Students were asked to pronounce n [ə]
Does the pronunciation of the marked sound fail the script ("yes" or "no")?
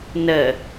no